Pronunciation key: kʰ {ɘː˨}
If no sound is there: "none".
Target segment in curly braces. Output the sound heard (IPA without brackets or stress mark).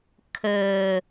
ɘː˨